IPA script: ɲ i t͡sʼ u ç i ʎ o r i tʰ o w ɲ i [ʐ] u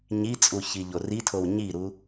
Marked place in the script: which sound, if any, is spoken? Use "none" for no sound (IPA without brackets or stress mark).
ɾ